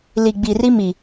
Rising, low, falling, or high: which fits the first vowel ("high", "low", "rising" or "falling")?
low